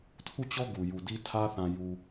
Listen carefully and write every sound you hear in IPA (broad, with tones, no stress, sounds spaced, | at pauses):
tʰ u˦˨ t͡ɕ ɔ˦ ɡ u˨ j u˨ d i˦ tʰ ä˦ θ ã˨ j u˨